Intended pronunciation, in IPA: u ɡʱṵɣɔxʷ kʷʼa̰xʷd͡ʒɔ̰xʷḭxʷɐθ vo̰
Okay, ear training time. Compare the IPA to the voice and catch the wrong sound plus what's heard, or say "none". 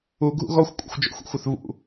o̰ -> ṵ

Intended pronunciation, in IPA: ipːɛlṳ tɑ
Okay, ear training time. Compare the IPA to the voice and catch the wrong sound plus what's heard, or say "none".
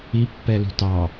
none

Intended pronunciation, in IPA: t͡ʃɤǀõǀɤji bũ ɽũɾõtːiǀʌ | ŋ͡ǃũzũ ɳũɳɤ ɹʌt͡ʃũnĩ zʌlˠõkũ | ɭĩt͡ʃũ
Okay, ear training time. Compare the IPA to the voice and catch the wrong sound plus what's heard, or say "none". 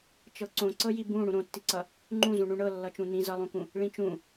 ɹ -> lː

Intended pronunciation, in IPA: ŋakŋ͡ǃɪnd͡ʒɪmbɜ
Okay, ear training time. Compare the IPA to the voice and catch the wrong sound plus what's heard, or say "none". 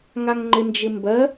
k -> ŋ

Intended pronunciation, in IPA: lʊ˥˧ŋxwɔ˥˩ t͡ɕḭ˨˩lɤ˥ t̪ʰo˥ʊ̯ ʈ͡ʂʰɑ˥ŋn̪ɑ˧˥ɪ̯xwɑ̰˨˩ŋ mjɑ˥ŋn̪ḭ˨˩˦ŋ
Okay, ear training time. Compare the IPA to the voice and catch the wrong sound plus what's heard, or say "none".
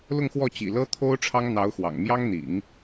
ɪ̯ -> ʊ̯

